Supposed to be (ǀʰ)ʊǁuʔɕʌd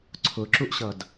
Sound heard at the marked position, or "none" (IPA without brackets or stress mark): ǀʰ